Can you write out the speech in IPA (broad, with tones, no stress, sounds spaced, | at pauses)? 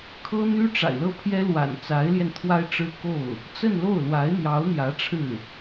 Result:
kʰ ɤ˥ n̪ y˥ ʈ͡ʂ a̰˨˩ ɪ̯ l ɤ˥˩ pʰ j ɛ˥ l w a̰˨˩ n t͡s a˧˥ ɪ̯ l j ɛ˧ n t̪ʰ w a˥ ɪ̯ ʈ͡ʂ ɻ̩˥ k o˥˩ ʊ̯ | t͡s ə˥˧ n l o˥˩ ʊ̯ l w a˧˥ ɪ̯ n̪ j ɑ˧˥ ʊ̯ n̪ j ä˧˥ ʈ͡ʂʰ ɻ̩˥˩